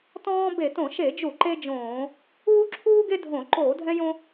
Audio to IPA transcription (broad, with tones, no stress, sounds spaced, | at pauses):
t ɔ̃ː˦ b e˧˩˧ t õ˧˩˧ ʃ e˧˩˧ d͡ʒ u˧˩˧ ǃ e˦ d͡ʒ õː˧˩˧ | uː˦ ǁʰ uː˦ ɡ e˦ dʱ õ˧˩˧ ǃ oː˧˩˧ dʱ ɛ̃˦ j õ˦